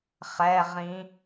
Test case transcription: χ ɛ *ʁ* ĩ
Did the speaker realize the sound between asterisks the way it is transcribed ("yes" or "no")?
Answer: yes